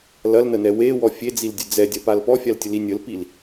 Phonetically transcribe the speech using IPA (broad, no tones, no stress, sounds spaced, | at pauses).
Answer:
l ɐ l n ə n ɛ w e w ɔ fʲ e d͡z i l dʲ ə d͡z ɛ dʲ ɐ p a l p ɔ fʲ a l tʲ ə l i nʲ ə l p i l